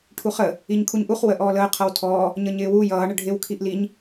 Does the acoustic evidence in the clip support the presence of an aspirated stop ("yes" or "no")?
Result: yes